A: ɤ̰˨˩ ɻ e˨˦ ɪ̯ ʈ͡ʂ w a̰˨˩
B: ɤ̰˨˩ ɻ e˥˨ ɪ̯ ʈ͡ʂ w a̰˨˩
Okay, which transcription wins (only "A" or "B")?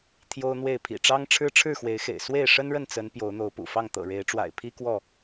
A